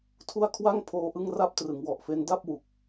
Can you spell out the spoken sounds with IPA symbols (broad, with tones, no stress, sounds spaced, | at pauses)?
tʰ u˥˩ a̯ kʰ w a˥˩ ŋ pʰ oː˧ ʔ ɯ˥˩ ŋ r a˥˩ p̚ t r ɯ˩˦ ŋ w ɔ˨˩ ʔ f e˦˥ n d a˥˩ p̚ w u˨˩ k̚